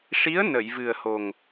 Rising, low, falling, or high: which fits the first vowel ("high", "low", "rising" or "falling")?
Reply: rising